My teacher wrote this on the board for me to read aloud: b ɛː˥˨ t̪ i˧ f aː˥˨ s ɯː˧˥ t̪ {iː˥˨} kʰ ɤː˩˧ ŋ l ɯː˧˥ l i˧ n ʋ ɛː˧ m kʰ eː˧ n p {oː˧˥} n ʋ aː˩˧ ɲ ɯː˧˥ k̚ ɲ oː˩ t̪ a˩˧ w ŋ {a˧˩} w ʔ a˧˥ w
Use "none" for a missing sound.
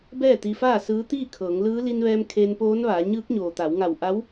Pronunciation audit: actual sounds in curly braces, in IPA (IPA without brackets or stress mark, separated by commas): iː˥˨, oː˧˥, a˧˩